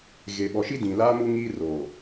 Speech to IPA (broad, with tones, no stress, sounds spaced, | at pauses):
ɣ e˨ ɓ ɔ˨ ʃ i˦ d ĩ˨ l aː˦ m u˦ ŋ iː˦ r oː˨